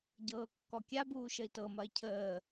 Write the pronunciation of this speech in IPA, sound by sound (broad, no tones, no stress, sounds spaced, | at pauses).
ɟ ɤː kː ɔ kʲ a b uː ʃ ə i̯ t ɤ m ɐ i̯ cʰ əː